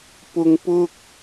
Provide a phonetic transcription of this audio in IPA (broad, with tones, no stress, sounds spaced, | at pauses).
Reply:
p ʊ˨ ŋ p ʊ˧ k̚